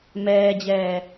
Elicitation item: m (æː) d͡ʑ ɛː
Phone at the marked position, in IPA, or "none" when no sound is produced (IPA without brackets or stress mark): ɛː